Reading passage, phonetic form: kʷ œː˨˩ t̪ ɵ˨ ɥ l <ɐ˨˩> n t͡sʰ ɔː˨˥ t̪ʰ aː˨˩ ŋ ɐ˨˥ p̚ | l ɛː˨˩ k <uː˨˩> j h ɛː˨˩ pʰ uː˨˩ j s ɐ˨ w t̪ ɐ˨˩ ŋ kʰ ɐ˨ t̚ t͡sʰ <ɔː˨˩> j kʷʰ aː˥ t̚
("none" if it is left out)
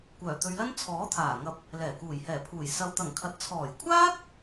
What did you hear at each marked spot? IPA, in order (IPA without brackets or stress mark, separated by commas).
ɐ˥, uː˨˩, ɔː˨˩